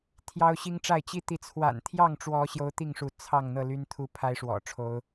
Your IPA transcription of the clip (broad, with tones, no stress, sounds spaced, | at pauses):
t̪ʰ j ɑ˦ ʊ̯ ɕ i˦ ŋ ʈ͡ʂ a˥˨ ɪ̯ t͡ɕ i˦ t̪ i˨˦ t͡sʰ w a̰˨˩ n t̪ʰ j ɑ˥˨ ŋ ʈ͡ʂ w ɔ˨˦ ɕ j o˦ ʊ̯ t̪ i˥˨ ŋ ʂ u˨˦ t͡sʰ ɑ˥˨ ŋ n̪ ɤ˥˨ l y˦ n t̪ʰ u˦ pʰ a˦ ɪ̯ ʂ w ɔ̰˨˩ ʈ͡ʂʰ o˨˦ ʊ̯